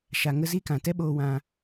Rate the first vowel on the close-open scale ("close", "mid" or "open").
open